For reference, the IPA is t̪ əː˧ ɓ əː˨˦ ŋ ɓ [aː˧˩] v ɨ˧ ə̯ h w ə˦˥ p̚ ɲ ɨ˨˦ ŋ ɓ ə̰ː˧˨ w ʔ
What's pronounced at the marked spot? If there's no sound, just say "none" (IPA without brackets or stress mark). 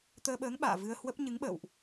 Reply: a̰ː˧˨